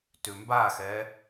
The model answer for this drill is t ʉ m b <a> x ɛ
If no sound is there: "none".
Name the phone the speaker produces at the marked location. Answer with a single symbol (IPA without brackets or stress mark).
a